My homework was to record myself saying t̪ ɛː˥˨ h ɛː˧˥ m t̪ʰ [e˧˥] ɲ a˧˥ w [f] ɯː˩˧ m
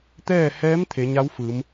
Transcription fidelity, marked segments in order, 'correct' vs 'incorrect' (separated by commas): incorrect, correct